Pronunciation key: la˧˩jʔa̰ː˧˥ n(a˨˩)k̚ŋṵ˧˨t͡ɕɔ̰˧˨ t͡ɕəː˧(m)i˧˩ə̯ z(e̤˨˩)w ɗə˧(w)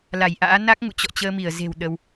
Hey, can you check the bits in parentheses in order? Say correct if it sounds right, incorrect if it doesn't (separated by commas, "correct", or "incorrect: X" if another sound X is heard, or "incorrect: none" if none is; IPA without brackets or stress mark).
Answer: incorrect: a˦˥, correct, correct, correct